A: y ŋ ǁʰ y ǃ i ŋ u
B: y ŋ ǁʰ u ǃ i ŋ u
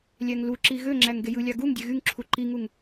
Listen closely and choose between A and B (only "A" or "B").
B